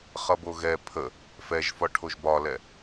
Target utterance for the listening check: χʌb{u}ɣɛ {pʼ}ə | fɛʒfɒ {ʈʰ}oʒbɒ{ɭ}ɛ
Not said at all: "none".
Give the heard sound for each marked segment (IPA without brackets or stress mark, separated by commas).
o, pʰ, ʈʰ, l